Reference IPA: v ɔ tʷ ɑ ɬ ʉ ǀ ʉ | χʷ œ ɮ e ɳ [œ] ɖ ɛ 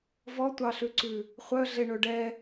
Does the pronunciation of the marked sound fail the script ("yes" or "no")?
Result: yes